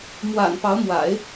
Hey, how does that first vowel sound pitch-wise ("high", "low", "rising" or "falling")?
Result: low